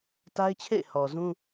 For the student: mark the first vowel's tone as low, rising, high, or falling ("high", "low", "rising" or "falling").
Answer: high